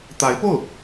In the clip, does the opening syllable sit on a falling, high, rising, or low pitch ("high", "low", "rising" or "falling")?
rising